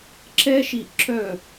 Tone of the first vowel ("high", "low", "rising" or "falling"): high